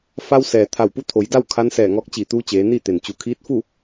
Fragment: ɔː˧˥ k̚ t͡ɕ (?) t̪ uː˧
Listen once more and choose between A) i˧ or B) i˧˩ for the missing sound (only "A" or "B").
B